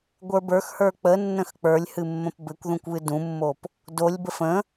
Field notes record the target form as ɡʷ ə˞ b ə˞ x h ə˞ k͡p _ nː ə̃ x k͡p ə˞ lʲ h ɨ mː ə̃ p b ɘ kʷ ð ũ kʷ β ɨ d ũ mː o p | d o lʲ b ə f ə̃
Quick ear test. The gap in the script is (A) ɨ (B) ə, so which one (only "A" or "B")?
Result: B